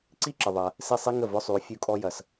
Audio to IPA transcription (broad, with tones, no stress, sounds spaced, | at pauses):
ǀ i˥ ǁ ə˨ ðˤ ɐ˨ | s i˥˨ sˤ i˥ ŋ ə˥˨ v ʊ˧˥˧ sˤ y˨ u̯ fʲ u˥˨ kʼ ɔ˥ j ɐ˨ s